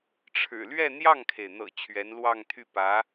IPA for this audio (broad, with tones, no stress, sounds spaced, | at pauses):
ʈ͡ʂʰ ɻ̩˨˩ l ɥ ɛ˥˧ n̪ j ɑ˥˩ ŋ kʰ e˩ ɪ̯ n̪ ɤ̰˨˩ t͡ɕʰ ɥ ɛ˧˥ n l w ɑ˥˧ ŋ t̪ʰ y˥˩ p ä˧˥